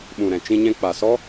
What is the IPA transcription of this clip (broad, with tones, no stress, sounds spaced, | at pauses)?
ɓ ũ˨ ɾ ɛ̃˨ t͡ʃ ĩ˧ ɲ ɛ̃˧ k͡p a˨ s ɔ˦